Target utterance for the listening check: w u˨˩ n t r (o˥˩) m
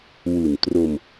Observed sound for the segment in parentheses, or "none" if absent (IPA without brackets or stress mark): o˧